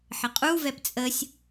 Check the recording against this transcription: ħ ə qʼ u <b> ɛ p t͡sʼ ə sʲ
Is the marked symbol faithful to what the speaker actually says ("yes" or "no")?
no